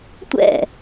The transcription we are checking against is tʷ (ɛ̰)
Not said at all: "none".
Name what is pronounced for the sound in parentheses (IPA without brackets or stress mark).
ɛ̰